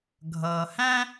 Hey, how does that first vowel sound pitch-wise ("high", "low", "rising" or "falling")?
low